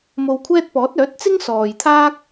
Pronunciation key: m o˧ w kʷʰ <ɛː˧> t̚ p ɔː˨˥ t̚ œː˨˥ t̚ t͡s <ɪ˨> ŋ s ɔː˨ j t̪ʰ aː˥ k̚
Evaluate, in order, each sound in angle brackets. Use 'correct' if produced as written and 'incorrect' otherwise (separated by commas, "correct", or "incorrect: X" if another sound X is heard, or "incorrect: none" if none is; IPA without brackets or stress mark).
incorrect: ɛː˥, incorrect: ɪ˥